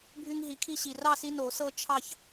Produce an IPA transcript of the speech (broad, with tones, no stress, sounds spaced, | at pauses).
bʱ y˦ ŋ ɦ i˨˦ kʰ i˦ ɕ i˨ r ɑ˥˨ s i˦ n o˨˩˦ s ɤ˦ t͡ʃʰ ɑ˥˨ ç